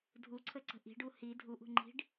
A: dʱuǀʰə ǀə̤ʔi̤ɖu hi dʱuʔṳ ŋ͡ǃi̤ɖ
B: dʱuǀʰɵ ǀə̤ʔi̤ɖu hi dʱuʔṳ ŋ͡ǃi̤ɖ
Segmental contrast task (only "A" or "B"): A